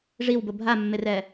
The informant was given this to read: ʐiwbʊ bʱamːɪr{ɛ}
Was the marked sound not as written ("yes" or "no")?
no